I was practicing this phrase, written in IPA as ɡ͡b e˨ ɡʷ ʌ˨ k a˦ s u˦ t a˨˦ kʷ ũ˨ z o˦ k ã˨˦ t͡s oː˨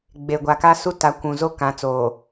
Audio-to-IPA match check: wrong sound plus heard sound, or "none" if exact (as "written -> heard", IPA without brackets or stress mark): ʌ˨ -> a˨